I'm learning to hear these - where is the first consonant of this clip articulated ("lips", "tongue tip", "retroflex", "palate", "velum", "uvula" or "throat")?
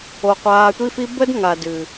uvula